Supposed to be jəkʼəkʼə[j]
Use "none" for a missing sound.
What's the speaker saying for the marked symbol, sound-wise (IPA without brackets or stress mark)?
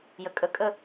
none